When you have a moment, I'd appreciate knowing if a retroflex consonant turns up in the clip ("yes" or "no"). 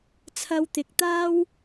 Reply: no